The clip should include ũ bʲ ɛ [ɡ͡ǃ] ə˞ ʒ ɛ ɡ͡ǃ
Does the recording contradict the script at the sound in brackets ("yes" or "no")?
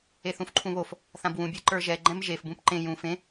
yes